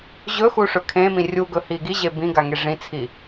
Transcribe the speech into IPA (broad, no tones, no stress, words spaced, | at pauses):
ʑɵxu ʂɵkʰẽmĩ rʲu ɡɵhiɡiʑe bĩɡa ŋeʐĩt͡sʰi